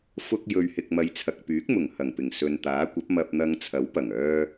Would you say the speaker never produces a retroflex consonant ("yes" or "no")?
yes